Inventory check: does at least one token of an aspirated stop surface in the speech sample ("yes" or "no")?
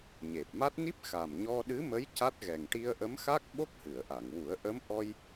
no